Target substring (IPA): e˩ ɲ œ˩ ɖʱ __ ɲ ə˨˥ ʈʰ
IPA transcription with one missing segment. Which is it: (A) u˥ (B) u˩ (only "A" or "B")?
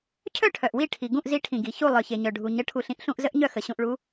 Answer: B